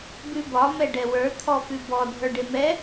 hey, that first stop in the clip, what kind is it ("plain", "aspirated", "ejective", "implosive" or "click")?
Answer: plain